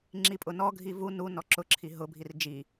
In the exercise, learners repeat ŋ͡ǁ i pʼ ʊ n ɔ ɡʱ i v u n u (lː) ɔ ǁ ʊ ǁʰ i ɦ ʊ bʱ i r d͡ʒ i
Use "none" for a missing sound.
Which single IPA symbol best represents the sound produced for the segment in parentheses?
n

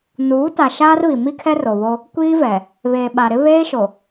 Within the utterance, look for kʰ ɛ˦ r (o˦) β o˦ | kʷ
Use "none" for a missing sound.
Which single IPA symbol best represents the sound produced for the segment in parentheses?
o˨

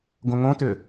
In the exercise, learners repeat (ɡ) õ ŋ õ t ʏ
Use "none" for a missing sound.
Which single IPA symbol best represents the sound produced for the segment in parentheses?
ɡ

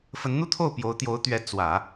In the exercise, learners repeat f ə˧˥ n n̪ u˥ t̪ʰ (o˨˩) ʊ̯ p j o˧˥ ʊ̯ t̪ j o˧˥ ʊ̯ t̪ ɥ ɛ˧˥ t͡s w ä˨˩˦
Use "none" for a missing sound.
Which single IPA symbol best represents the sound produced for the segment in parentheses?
o˥˩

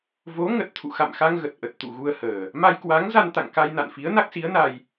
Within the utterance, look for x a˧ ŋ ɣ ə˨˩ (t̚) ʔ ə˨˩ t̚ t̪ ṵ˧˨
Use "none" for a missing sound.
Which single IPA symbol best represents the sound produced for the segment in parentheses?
t̚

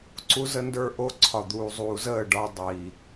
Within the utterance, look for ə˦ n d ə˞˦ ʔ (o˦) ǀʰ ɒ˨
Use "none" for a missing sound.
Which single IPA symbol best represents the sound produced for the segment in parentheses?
o˦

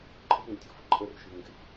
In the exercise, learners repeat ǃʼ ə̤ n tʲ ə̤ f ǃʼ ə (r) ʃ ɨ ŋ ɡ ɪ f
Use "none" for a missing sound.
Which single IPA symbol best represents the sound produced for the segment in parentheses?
r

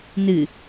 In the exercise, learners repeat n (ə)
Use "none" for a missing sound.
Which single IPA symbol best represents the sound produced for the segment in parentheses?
ɨ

